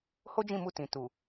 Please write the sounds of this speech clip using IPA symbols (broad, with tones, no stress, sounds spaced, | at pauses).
h o˦ d͡ʒ ĩ˦˨ m u˧ t ĩ˨ t u˨